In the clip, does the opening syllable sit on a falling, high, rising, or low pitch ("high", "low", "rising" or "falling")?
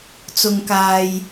low